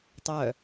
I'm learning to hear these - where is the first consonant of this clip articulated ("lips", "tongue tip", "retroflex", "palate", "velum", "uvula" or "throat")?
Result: tongue tip